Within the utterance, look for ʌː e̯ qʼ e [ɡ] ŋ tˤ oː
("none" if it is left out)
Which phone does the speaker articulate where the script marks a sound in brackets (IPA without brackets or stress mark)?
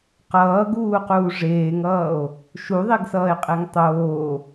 none